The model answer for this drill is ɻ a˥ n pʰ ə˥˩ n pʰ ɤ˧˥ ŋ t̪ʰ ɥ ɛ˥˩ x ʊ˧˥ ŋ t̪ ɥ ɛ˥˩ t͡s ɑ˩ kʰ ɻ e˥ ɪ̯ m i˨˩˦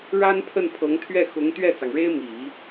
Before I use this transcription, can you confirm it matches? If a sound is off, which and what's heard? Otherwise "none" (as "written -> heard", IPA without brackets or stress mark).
kʰ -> ŋ